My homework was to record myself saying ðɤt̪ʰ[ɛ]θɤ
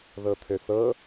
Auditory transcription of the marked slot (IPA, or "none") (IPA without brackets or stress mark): ø